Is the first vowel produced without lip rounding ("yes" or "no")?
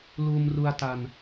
no